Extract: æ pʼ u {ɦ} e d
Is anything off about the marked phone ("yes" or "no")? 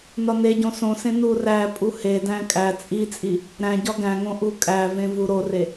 yes